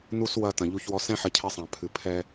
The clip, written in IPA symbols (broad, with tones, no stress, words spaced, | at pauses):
nu˧s wɐ˨ tɐ̃˨ʎu˧ç wɔ˨sɛ̃˧ħɐ˨ cʰɛ˧sˤã˨ pʰɨ˨pʰɛ˧